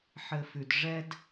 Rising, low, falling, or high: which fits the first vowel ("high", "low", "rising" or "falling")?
low